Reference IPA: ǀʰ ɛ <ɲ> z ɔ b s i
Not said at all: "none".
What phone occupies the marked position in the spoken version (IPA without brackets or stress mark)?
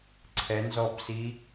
n